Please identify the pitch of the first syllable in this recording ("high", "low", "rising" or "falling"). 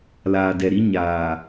low